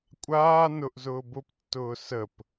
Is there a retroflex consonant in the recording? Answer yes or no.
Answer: no